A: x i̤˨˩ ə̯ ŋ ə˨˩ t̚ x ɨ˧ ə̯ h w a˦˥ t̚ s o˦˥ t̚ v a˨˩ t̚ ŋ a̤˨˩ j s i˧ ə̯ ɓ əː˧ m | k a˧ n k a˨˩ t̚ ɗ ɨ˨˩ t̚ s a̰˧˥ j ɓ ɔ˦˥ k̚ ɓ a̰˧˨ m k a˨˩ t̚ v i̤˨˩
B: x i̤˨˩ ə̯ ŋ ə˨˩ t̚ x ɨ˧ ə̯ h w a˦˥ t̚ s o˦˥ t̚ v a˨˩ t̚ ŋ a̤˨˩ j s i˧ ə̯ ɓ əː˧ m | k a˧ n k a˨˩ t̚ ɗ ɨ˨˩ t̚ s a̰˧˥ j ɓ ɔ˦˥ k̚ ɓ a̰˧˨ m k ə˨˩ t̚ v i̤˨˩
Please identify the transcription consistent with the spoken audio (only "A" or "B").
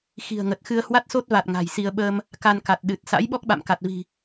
A